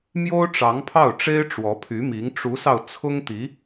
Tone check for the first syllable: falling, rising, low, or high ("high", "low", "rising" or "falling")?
high